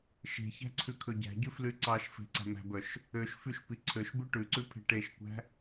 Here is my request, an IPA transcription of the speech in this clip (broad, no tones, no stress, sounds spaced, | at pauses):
ʃ e̤ ç æ̤ ǀʰ ʉ kʰ ɵ ɟ æ̤ ɟ ʉ f l y ǀ ɑ ʃ f e̤ ǀ æ̤ m æ̤ b œ ʃ | ø ʃ f y ʃ p i ǀʰ ø ʃ b ʉ ʈ ʉ ǀ ʉ pʰ e̤ ʈ e ʃ kʷ æ̤